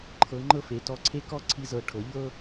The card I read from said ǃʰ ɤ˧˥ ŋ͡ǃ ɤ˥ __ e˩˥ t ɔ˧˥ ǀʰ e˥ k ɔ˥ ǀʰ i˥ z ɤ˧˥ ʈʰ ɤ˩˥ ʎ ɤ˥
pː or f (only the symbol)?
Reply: f